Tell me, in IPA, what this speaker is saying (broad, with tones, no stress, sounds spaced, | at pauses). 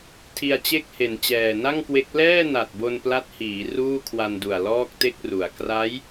tʰ i˧ a̯ t͡ɕ e˥˩ k̚ h e˨˩ n t͡ɕ ɛː˨˩ n a˥˩ ŋ k w e˦˥ k̚ l ɛː˥˩ n a˨˩ t̚ b o˧ n p l a˦˥ t̚ h iː˩˦ r uː˥˩ kʰ w a˧ n d u˨˩ a̯ l ɔː˥˩ k̚ t e˥˩ k̚ r u˩˦ a̯ k r a˦˥ j